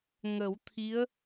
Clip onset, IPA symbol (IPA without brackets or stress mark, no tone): ŋ